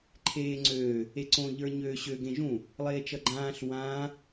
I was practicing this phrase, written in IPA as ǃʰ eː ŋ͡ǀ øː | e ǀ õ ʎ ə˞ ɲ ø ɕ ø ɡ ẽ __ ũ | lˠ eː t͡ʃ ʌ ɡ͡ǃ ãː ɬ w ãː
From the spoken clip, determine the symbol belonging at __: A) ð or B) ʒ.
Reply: B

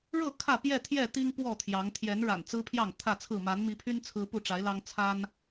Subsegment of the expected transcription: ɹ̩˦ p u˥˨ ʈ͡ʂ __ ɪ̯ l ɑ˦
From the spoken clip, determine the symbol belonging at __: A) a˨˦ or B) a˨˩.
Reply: A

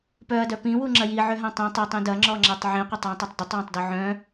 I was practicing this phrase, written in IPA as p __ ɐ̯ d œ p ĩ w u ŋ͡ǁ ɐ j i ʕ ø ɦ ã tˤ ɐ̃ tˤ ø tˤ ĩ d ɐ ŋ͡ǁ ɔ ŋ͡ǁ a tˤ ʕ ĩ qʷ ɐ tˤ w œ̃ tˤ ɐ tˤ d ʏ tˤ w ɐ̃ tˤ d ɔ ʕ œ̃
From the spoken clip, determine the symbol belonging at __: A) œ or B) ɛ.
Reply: A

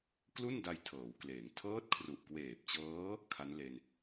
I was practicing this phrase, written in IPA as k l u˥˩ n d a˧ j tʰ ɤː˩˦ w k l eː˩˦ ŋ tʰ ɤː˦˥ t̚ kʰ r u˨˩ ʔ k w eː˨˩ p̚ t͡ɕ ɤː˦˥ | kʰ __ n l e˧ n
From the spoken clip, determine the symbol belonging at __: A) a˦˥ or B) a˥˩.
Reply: A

